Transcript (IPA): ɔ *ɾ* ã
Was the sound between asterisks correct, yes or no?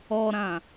yes